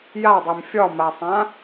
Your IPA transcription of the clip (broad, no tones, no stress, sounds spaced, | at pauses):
j a dˤ e m fʲ ɒ m a sˤ ã